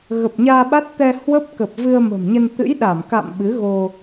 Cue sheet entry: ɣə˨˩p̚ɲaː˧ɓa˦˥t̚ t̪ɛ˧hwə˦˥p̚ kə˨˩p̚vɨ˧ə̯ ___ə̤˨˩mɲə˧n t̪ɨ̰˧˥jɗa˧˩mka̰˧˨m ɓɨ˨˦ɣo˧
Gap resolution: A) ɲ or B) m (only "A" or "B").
B